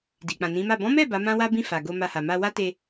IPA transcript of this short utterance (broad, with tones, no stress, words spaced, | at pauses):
di˨k͡pã˨nĩ˨˦ma˦˨ bɔ̃˨˦mɛ˦˨ ba˨˦mã˦wa˦bĩ˦˨ fa˨ɡo˧ma˧ ha˨ ma˧wa˦te˧